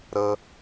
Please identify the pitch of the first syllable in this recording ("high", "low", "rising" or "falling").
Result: low